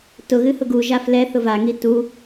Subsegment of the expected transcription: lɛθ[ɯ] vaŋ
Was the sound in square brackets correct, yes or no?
no